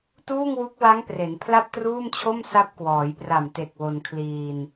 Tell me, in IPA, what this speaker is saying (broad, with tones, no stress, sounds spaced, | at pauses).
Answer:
t uː˥˩ ŋ w u˦˥ k̚ w a˦˥ ŋ p r e˩˦ n pʰ l a˥˩ p̚ t r uː˥˩ m t͡ɕʰ o˥˩ m s a˦˥ p̚ k w ɔː˩˦ j p r a˨˩ m t e˨˩ k̚ w o˧ n kʰ l iː˧ n